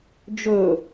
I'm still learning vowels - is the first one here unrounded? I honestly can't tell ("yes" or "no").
no